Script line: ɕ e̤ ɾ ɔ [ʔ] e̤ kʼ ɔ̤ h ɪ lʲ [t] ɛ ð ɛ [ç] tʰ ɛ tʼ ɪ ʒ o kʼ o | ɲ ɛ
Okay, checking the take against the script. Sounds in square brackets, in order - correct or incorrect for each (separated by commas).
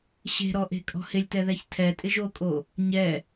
correct, correct, correct